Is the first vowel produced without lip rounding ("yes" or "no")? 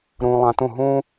no